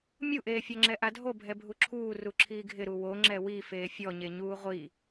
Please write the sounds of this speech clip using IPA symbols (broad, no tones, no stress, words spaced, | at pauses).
mʲuʔeː fʲɔŋ͡ǁɛʔadʱo bʱɛbʱuǁʰuː ruǁʰiːɡʱɪ ɾuwo ŋ͡ǁɛwi feːfʲɔɲe ɲuːʁʷi